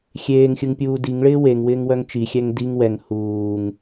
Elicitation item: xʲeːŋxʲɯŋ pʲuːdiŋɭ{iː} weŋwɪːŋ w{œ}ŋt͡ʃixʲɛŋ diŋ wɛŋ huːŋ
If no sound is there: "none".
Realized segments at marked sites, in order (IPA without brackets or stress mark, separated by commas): ɪː, œ